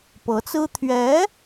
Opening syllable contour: rising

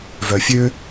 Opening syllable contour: low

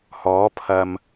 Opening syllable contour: rising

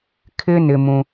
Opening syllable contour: high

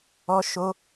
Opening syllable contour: high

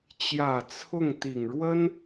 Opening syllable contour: low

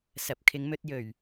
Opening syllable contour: rising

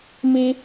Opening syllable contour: high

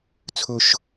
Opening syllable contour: low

